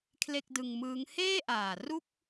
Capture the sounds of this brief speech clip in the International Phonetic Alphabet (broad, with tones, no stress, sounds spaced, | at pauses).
kʰ l e˥˩ k̚ d ɯ˧ ŋ m ɯː˦˥ ŋ h eː˥˩ ʔ aː˨˩ r u˥˩ k̚